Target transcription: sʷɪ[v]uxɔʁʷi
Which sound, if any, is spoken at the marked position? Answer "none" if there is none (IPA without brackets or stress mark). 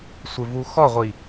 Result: v